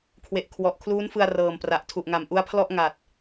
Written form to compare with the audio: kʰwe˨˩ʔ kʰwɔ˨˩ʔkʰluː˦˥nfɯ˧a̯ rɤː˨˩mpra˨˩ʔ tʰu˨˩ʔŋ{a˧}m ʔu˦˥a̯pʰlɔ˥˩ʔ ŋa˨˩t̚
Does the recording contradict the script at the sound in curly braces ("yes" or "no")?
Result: yes